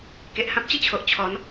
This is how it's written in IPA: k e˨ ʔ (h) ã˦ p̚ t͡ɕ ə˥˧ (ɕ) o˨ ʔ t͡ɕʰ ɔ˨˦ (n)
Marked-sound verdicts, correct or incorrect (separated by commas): correct, incorrect, correct